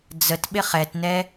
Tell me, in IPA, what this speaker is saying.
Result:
d͡z ə t ɓ ɪ χ ɛ t n ɛ

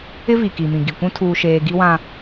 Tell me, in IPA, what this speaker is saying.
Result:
ɪ˦ v i˨ k i˨ m ĩ˨ ɡ i˨ kʷ ũ˦ tʰ uː˦ ʃ eː˦ ɡ i˦ w ã˦

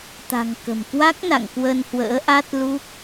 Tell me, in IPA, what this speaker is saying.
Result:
t̪ a̤˨˩ ŋ k ə̤˨˩ m k w a˦˥ k̚ n a̰˧˨ ŋ k w ə˧ n h w ə̰ː˧˥ ʔ a˦˥ t̚ l u˦˥ k̚

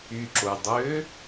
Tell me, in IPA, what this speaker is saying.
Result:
y ǁ o dˤ øː

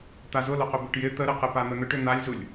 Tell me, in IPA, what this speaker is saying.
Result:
t̪ a z ʊ l ʊ q ʏ b ʏ ʈ j ɪ t̪ ə ɾ ɪ q ɪ p a n̪ ə n̪ ʏ ʈ ʏ n̪ a lʲ z u lʲ

